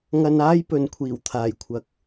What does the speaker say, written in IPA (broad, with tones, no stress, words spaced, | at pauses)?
ŋɐ˧n aː˥jpɵ˨n kʷʰiː˨˩wt̪ʰaː˨˩jkʷʰɐ˨k̚